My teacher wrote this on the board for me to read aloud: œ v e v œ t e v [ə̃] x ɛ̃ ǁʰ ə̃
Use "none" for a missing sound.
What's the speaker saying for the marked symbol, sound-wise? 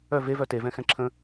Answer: ɛ̃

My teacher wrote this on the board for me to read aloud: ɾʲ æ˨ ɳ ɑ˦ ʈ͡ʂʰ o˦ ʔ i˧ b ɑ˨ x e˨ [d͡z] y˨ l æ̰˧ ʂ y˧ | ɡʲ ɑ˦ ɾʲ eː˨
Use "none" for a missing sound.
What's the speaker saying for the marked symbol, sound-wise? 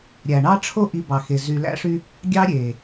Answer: z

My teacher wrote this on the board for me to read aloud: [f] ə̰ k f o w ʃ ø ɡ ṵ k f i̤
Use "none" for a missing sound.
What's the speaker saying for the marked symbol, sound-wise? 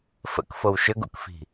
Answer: f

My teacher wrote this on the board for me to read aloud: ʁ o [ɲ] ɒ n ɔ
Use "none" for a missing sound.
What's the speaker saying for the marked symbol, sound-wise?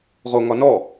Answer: ŋ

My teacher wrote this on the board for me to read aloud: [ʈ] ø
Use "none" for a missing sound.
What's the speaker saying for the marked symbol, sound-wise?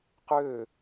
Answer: q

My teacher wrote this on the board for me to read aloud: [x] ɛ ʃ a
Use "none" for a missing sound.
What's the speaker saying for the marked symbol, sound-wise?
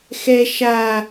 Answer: x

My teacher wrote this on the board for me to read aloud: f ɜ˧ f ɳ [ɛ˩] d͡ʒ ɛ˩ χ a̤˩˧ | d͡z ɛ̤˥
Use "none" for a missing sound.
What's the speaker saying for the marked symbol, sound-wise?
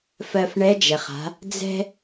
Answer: ɛ˧˥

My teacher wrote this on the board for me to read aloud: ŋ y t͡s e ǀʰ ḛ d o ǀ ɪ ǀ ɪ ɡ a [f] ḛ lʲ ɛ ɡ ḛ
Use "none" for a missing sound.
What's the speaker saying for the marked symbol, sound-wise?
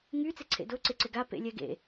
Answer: p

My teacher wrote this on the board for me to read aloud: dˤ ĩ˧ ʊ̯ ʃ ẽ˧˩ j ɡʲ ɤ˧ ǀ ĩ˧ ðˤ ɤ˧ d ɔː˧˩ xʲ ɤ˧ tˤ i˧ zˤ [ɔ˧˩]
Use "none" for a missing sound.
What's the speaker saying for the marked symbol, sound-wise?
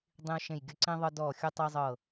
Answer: ɤ˧˩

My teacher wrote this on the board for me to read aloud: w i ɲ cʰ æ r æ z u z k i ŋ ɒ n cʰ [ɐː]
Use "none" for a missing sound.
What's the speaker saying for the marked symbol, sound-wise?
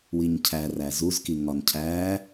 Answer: æː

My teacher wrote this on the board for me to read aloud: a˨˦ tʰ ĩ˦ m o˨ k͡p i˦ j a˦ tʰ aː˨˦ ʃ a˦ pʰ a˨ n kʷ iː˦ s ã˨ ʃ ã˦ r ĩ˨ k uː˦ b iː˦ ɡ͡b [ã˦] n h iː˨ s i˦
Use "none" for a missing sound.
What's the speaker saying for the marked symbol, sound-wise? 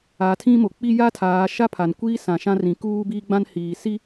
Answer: ã˦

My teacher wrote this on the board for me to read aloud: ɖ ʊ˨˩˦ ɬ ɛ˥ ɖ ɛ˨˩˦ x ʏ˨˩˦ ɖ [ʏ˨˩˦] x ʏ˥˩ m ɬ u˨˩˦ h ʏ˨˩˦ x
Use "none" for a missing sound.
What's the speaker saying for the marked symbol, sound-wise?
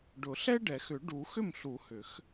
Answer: u˨˩˦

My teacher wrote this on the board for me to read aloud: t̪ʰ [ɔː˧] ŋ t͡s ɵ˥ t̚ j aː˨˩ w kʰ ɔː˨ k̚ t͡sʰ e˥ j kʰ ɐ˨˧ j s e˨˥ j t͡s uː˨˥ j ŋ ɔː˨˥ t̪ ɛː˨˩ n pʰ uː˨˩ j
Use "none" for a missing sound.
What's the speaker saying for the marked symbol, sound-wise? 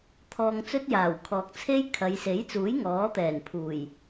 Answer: ɔː˧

